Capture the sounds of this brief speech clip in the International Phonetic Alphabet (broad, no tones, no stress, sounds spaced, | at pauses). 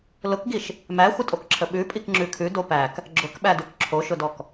l ʊ k ɡ i ʃ | m æ xʷ ə tʼ o k ǁʰ ə ɓ ʉ pʼ i k ŋ͡ǁ ʉ kʰ ʉ d o p æ k | ɡ͡ǁ ʊ k ɓ æ d ʉ k ǁʰ o ʃ ʊ d ɔ k